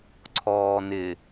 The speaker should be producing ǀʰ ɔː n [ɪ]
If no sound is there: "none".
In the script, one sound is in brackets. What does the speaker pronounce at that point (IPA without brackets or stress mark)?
ɪ